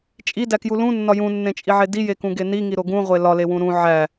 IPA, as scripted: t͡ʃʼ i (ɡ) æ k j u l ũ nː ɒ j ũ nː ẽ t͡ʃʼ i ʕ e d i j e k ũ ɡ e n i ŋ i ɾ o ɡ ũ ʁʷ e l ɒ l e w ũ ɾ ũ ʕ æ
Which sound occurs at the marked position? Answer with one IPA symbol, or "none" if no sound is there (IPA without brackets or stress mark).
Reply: d